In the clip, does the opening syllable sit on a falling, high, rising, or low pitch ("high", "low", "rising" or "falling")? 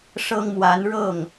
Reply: high